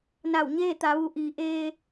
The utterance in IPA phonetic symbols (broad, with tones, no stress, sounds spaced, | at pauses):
n a˧˩ w ɲ eː˥˨ t̪ a˩˧ ʋ u˩˧ ʔ iː˩˧ ʔ eː˧